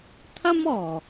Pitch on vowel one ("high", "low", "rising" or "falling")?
high